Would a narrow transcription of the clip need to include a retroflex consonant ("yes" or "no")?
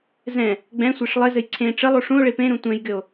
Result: yes